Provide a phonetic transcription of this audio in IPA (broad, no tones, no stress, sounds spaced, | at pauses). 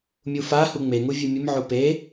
mʲ u f a h u ŋ͡m e ŋ u vʲ ɨ mʲ ɨ m ʕ u p e